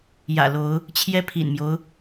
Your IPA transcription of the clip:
j ä̰˨˩ l o˨˦ ʊ̯ | t͡ɕʰ j ɛ˦ pʰ ḭ˨˩ n m j o˦ ʊ̯

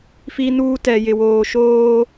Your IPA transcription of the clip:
f i˦ n uː˦ t ɛ˨ j ɪ˨ w oː˨ ʃ oː˦

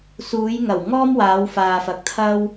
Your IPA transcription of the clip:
s uː˨˧ j ŋ ɐ˨˩ w ŋ ɔː˥ m w aː˨˧ w f aː˨ f ɐ˨˥ k̚ t̪ʰ ɐ˥ w

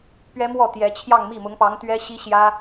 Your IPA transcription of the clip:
p ɥ ɛ˥ m w ɔ˥˩ t̪ j ɛ˧˥ t͡ɕʰ j ɑ˥˧ ŋ m i˥˩ m ʊ˧˥ ŋ p ɑ˧˥ ŋ t̪ ɥ ɛ˥ ɕ i˥ ɕ j ä˥

